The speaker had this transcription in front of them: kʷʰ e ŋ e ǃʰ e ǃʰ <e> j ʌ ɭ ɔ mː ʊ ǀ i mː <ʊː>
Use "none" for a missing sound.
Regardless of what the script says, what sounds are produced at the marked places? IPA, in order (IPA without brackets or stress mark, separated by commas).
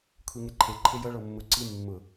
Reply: e, ʊ